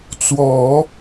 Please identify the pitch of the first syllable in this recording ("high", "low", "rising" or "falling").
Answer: low